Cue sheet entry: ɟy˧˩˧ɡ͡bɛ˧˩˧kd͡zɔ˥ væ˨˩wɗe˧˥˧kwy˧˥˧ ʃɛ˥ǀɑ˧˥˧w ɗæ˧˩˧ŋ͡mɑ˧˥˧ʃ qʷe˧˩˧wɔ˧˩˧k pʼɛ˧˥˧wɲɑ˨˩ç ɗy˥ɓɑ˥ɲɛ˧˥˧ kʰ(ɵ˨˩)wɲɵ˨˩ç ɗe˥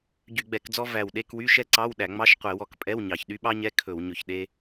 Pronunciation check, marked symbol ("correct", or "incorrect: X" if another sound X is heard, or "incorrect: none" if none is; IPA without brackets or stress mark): incorrect: ɵ˧˩˧